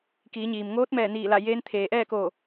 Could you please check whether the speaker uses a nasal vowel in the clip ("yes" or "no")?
no